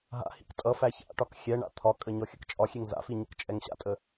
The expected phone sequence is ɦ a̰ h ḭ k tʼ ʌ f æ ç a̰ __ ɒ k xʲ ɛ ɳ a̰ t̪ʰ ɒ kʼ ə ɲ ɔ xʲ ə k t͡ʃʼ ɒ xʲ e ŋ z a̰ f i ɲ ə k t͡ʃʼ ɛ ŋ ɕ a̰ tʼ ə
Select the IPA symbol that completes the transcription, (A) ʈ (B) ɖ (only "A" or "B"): A